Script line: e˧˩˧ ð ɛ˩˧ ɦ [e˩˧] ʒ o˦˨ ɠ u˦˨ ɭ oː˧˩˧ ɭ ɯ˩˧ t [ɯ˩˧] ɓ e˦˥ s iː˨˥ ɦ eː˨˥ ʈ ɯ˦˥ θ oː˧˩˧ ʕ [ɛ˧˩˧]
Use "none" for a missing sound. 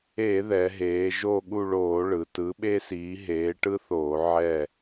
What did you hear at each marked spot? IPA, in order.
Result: eː˩˧, ɯ˨˥, ɛ˦˨

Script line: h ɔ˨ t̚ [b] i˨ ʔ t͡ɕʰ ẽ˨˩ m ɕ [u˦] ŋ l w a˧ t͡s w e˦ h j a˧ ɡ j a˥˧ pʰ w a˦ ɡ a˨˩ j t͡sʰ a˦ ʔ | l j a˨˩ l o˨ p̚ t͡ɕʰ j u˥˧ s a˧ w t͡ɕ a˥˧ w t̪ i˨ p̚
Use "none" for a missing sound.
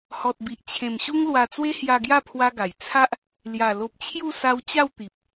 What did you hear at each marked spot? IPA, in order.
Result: b, u˦

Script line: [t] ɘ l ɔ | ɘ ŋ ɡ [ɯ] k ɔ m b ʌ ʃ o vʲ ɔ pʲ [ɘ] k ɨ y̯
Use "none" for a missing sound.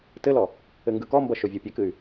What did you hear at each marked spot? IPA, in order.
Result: t, ɯ, ɘ

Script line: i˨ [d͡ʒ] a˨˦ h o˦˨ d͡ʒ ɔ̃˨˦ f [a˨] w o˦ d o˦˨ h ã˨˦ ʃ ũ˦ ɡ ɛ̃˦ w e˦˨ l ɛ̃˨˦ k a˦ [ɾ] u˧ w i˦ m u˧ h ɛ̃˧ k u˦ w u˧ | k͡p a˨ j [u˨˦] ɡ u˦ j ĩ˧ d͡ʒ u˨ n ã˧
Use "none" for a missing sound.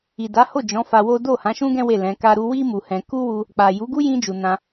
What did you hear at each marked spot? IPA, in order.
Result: d, a˧, ɾ, u˨˦

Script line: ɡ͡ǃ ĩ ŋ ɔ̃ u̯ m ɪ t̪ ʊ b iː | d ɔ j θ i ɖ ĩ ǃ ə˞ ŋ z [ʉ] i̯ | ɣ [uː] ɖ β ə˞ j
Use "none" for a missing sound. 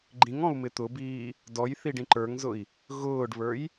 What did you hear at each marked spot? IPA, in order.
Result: ʊ, ʊː

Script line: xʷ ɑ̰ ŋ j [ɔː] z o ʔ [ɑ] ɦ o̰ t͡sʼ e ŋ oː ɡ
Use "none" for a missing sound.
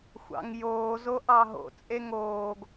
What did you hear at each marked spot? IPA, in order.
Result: oː, ɑ

